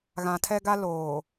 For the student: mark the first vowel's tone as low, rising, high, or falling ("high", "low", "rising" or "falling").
low